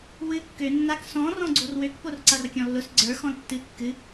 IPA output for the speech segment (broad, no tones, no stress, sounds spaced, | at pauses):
w ɨ kː ø nː a k s ɔ̃ r ɔ̃ ɡ͡ǀ o r w ø k p o r ǀ a r kʲ ɔ̃ lː ʊ s ɡ͡ǀ ə˞ x ɔ̃ l tː ɨ kː ɨ